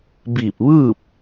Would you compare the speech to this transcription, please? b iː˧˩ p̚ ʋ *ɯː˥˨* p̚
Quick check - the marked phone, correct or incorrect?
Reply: correct